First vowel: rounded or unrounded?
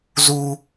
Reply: rounded